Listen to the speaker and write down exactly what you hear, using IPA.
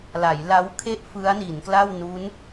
l a˩˦ j l a˦˥ w kʰ e˥˩ ʔ f ɯ˦˥ a̯ n i˩˦ n k l a˥˩ w n u˦˥ n

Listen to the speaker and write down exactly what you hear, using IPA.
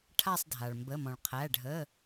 ʈʰ a˦˨ sˤ dʱ a˩ ɭ m b ə˩˧˩ m ɔ̃˩ ɭ qʰ æ˩˧˩ ɖʱ ə˩˧˩

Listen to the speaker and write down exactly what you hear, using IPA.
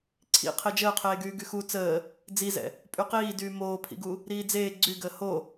ǀʰ ḭ qʰ e d͡ʒ əː qʰ eː ɡ yː ɡ y x u t͡s əː | d͡z i z ɛ̰ | pʼ y q iː d yː m oː pʰ ḭ ɡ u | ɾ iː d͡z eː ɡ͡ǀ y ɡ əː h o

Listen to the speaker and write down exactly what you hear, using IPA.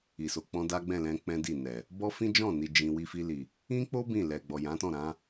i˨ s o˨ k͡p ɔ̃˧ d a˦ ɡ͡b ɛ̃˦˨ l ɛ̃˧ k͡p ɛ̃˦ d i˦˨ n ɛ˨ | b ɔ˦ f ĩ˦ d͡ʒ ɔ̃˦˨ n i˧ d͡ʒ ĩ˧ w i˧ f i˧ l i˨ | ĩ˦ k͡p o˦ b ĩ˦˨ l ɛ˨ ɡ͡b ɔ˨ j ã˨˦ t ɔ̃˦˨ ɾ ã˨˦

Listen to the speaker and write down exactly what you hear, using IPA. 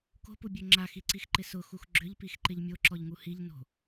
k o̤ p u bʲ ø ŋ͡ǁ a x i ǀ i x ǃ ɪ s ʊ x u x ɡ͡ǁ ʏ ʎ p i x ǃ ɪ ʎ mʲ o ǁ ɔ ʎ ŋ u h i ʎ n o̤

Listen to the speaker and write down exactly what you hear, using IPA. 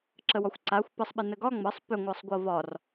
ǁ ə w ɒ xʷ ǀ a xʷ p ə sˤ ɓ ɪ n ə ɡ ɒ ŋ͡m ɤ sˤ p ʏ ŋʷ ɤ sˤ ɡʷ ɤ v ɒ r

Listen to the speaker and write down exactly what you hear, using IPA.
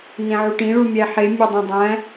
n ẽ ʕ u ʈ ĩ ɭ u mʲ æ ħ e mʲ e dˤ ẽ dˤ æ̃

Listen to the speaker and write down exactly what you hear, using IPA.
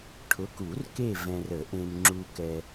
ʈʰ ʊ˨˥ k u˨˩˦ r k e˦˨ v ɛ̃˨ r ə˨˩˦ ʔ ẽ˨ m ŋ͡ǁ u˨ k ɛ˨

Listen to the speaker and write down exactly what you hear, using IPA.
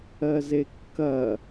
ɜ z e kː ɐ

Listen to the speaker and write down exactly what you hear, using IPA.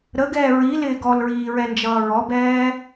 ɾ ə ɡ ɛː ɹ i l ɪː ɡ ɔ l ɹ iː ɹ ɛ n d͡ʒ ʌː ɹ ɔ b ɛː

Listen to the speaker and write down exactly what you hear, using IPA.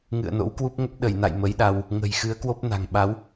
ŋ ɨ̰˧˨ ə̯ n o̰˧˥ w k w u˦˥ p̚ ŋ ə˦˥ p̚ ɗ ə˧˩ j n a̰˧˨ j m ə˨˦ j ɗ a˧ w | ŋ ə̤˨˩ j x ɨ˨˦ ə̯ k w o˦˥ p̚ n a̤˨˩ ŋ ɓ a˨˦ w

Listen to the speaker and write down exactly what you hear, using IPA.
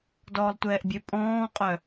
d ɔː lˠ tʷ ɛː ʔ bʲ ø pʼ ɔ̃ː qʼ œ

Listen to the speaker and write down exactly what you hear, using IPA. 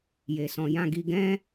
j e˨ s ɔ̃˨ j ã˧ ɡ i˧ ɡ ɛ̃˦

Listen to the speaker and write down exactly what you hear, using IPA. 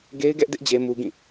ɡ e˦ ɪ̯ ɡ ɛ˦ ʔ d ɪ˦ ʔ d͡ʑ e˦ m u˦ ɡ ĩ˦˨

